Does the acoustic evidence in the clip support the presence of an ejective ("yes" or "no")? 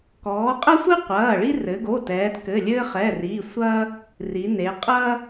yes